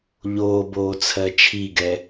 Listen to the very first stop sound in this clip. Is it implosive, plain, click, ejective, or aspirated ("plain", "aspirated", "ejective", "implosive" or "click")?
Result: plain